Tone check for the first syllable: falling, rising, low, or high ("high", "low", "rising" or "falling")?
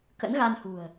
rising